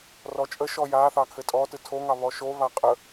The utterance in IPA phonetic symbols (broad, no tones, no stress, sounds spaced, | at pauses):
r ɔ t͡ʃʼ ə ʃ ɔ j a θ ɑ kʰ ɘ tʼ ɔ t ɯ tʰ o ŋ ɑ β ɔ ʃ o β a qʼ ə